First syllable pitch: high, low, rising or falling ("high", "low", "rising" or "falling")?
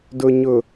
low